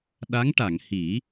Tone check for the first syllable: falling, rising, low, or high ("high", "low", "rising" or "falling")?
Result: rising